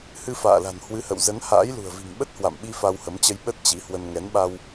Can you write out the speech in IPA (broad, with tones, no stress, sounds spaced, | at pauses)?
h ɨ˧ f a̰ː˧˨ l a̤˨˩ n h w ɨ˨˦ h ə̰˧˨ w z ə˨˦ n h a̰ː˧˥ j l ṳ˨˩ ə̯ v i̤˨˩ ŋ ɓ ə˦˥ t̚ h w a̰˧˨ m ɓ i˧ f a˧ w h ə˨˦ m t͡ɕ ə˧ j ɓ ə˦˥ t̚ t͡ɕ i˨˦ h w ə˧ n ŋ ɛ˨˦ n ɓ a˧ w